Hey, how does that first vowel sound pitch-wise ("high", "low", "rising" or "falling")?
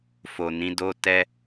low